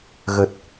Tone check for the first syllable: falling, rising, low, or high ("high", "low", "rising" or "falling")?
low